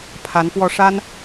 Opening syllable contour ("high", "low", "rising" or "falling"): rising